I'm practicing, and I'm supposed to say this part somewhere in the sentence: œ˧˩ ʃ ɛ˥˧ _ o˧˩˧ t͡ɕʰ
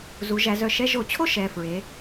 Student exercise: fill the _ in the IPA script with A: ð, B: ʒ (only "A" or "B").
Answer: B